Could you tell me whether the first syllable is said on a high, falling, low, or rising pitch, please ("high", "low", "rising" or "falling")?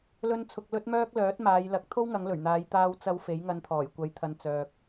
high